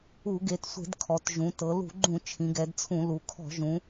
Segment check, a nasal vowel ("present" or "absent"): present